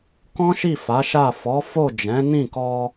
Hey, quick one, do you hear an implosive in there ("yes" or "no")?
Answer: no